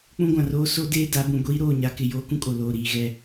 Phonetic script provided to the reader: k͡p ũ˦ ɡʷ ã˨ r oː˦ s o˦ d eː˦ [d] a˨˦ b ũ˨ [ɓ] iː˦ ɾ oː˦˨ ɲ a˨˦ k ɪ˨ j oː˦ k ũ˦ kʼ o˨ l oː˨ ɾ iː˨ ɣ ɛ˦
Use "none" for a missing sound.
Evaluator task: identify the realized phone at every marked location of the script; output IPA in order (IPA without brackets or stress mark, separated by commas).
d, ɡʷ